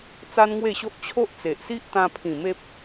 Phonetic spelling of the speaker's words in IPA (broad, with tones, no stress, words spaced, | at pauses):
t͡sa˦nŋwe˥˧ɕo˦ʔ t͡ɕʰo˦ʔt͡se˨ʔsi˦ʔ t̪ã˧ pʰĩ˨˩ me˦p̚